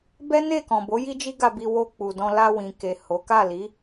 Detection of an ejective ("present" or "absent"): absent